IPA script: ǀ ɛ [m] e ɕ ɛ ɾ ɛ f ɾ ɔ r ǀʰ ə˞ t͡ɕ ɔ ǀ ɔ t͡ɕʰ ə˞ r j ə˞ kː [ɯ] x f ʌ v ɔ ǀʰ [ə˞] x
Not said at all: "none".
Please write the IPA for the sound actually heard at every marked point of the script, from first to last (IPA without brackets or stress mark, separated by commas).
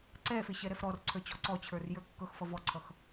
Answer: f, ɤ, ʌ